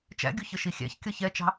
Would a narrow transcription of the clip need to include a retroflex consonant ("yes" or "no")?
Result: no